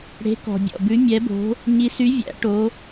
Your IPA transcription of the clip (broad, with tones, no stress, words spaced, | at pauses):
ɽe̤˨˥kɔ̤˩ bʲɔ̰˩bʉ˨˥ mʲɛ˨˥bo̤˨˥ | ɲi˨˥sy˨˥ vʲæ̰˨˥ʈo˨˥